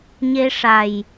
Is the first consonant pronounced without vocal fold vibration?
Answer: no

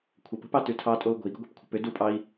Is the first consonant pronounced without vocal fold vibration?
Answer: yes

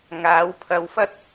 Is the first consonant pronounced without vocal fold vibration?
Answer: no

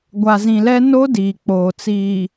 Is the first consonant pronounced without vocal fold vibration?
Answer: no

